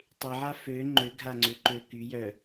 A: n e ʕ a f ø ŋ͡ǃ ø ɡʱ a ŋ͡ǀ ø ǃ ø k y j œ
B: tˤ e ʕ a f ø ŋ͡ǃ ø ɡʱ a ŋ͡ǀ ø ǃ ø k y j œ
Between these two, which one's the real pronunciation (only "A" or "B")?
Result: B